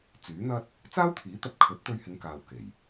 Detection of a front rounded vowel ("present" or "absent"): present